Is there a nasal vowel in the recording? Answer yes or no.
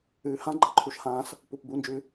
yes